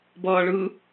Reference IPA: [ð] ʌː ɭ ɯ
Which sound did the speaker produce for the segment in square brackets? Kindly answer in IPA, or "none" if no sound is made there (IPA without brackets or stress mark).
b